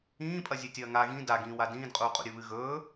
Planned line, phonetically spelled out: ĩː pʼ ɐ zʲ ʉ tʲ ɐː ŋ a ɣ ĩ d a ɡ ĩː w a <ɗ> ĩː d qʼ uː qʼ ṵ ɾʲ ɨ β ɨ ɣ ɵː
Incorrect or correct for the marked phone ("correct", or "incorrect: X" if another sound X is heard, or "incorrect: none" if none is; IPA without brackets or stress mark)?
incorrect: d